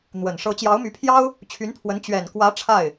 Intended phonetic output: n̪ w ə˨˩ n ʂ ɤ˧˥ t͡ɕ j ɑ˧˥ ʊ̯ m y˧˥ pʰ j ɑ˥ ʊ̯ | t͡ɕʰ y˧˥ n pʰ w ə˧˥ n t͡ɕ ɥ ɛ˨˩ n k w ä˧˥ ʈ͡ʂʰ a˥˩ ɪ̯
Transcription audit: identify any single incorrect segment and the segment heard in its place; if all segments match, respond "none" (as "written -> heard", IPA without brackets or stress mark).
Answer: none